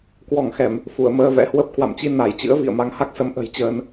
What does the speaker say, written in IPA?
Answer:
k w ɔ˧˩ ŋ x ɛ˧˩˨ m | f u˧˩ ə̯ m əː˧ v ɛ̰˧˥ h w ə˦˥ p̚ k w a̰˧˨ m t͡ɕ i˧ n a˧˩ j t͡ɕ ɨ̰˧˥ ə̯ v ḭ˧˨ ə̯ m a˨˦ ŋ h a˦˥ k̚ s ə˨˦ m ʔ ə̤˨˩ j t͡ɕ əː˧ n

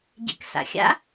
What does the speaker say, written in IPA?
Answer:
ɟ ḛ k s a̰ xʲ a̰

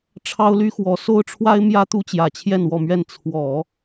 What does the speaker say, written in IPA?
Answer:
ʈ͡ʂʰ ɑ˥ ʊ̯ l y˥ x w ɔ˧˥ s o˥ ʊ̯ ʈ͡ʂʰ w a˥ ɪ̯ m j ä˥ t̪ u˥ t͡ɕ j ä˨˩ t͡ɕʰ j ɛ˥˧ n w ɔ˥˧ m ɥ ɛ˥˩ n t͡sʰ w ɔ˨˩˦

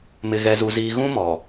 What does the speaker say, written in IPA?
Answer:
m ɪ˨ ɣ ɛ˨ z u˨ z iː˨ ɣ ũ˦ m ɔ˨

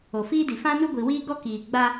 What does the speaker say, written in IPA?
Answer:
o˨ f iː˦ d i˨ f ã˦ n u˦ ɡʷ i˨ w iː˦ ɡ ɔ˦ k iː˨ ɡ͡b a˦

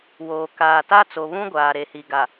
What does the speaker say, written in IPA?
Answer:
w oː˨ k aː˨ t a˦ t͡s o˨ β ũ˦ ɡʷ aː˨ ɾ e˨ h i˨ ɡ a˨

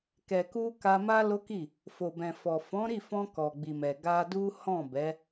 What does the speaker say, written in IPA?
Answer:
k ɛ˨ k u˧ k a˧ m a˦ l o˦ k i˦˨ | f o˨ b ɛ̃˨ f ɔ˨ f ɔ̃˨˦ ɾ i˦˨ f ɔ̃˧ k ɔ˨ ɡ͡b i˨ m ɛ˨ ɡ a˧ d u˦ h ɔ̃˦˨ b ɛ˨˦

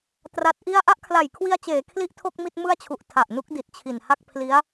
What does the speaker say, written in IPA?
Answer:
t r a˦˥ t̚ ʔ i˥˩ a̯ ʔ a˥˩ ʔ kʰ l a˨˩ j kʰ w i˧ a̯ t͡ɕ eː˩˦ kʰ l i˥˩ ʔ tʰ o˥˩ k̚ m i˥˩ t̚ m ɯ˥˩ a̯ t͡ɕʰ u˨˩ ʔ tʰ a˨˩ ʔ n u˦˥ k̚ d i˨˩ t̚ t͡ɕʰ i˨˩ n h a˥˩ k̚ pʰ l i˦˥ a̯

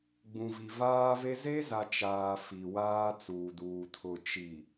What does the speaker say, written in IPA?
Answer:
ɡ͡b ũ˨ v i˨ v aː˦ v e˦ z e˦ z a˨ t͡ʃ aː˨ f i˨ w aː˦ t͡s uː˨ d uː˨ tʰ ʊ˨ t͡ʃ i˨

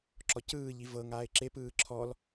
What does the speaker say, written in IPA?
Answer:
ǁ ɔ c ɯː ʎ i v ɤ ŋ aː ɪ̯ ǁ e p ɯː ǁʰ ɔ l

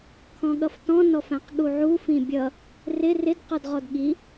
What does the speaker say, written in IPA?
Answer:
kʰ ɔ̃ ɠ ʌ f t ɔ̃ n ɔ f æ̃ q ɠ u ʕ u f ĩ bʲ ʌ | r ɪ r ɪ d q ɔ d ʁ ɔ d ɠ i

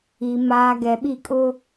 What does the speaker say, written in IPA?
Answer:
i˨ m aː˨ ɡ ɛ˨ ɓ i˦˨ kʼ ʊ˦

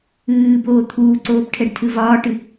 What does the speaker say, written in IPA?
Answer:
ɨː b oː t̪ʰ uː ǀ oː p ʈʰ ɛ ɖ tʰ ɨ v ɒː ʈ ɨ

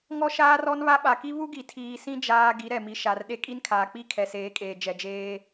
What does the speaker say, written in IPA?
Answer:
ŋ ɔ˦ ʃ aː˦ r ɔ˦ n β a˦ ɓ a˨ k i˦ β u˦ ɡ i˨ tʰ iː˨ s ĩ˦ d͡ʒ aː˦ ɡ i˨˦ ɾ ɛ˨ m i˨ ʃ a˨ r ɗ e˦ kʼ i˦ n kʰ aː˨ k͡p i˦˨ kʰ ɛ˨ s eː˨˦ kʼ eː˨ d͡ʒ ɛ˨ d͡ʒ eː˦

